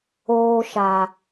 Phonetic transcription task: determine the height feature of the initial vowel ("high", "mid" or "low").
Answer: mid